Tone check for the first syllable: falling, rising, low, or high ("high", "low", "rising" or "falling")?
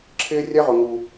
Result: high